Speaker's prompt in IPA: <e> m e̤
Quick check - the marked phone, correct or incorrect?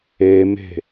correct